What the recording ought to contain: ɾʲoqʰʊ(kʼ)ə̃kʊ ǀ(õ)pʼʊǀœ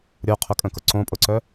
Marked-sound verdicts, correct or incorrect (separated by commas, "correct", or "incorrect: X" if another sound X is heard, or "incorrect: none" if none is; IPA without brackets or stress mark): correct, correct